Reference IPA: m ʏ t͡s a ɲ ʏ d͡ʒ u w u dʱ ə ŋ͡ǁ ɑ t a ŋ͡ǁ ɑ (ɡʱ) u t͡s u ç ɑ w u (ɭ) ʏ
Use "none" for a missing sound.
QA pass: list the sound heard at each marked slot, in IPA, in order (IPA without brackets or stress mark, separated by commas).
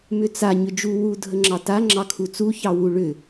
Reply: kʰ, ɭ